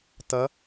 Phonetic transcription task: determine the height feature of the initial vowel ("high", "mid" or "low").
mid